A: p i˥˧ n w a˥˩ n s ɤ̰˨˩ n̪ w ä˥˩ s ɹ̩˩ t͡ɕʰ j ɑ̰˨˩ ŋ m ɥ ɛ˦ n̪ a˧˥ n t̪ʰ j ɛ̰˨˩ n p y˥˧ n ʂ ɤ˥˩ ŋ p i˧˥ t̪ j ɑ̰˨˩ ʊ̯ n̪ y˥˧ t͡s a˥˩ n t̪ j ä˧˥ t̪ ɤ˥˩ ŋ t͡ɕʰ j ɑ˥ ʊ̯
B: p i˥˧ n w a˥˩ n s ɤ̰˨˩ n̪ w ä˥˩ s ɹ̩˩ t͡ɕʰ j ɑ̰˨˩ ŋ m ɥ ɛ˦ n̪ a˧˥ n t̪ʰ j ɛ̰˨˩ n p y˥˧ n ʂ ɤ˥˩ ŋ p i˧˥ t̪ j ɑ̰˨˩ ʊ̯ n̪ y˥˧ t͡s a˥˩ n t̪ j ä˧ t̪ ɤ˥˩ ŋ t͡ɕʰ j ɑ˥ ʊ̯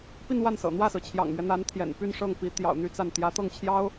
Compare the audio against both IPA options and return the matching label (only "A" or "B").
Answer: A